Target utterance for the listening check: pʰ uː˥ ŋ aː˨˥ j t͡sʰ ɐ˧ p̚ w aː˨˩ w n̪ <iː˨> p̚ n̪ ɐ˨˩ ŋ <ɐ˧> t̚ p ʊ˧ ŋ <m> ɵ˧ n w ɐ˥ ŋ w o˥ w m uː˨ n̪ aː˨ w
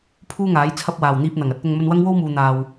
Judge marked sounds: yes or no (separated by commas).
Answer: no, yes, yes